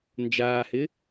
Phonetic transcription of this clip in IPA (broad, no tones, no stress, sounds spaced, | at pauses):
n d͡ʒ aː h ɪ